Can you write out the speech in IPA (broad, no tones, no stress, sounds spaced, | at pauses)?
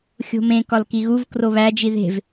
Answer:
xʲ o̤ m ẽ k ɒ l k i ɣ u v k r o β æ d͡ʒ i ð e̤ v